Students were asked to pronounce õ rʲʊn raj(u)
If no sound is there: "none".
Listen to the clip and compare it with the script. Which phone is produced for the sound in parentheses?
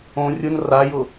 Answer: ʊ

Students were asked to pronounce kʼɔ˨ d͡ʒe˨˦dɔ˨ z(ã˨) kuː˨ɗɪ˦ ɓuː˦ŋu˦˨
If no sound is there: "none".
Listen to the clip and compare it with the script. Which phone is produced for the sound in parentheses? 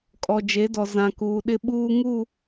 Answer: ã˨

